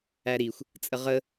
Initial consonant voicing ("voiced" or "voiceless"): voiced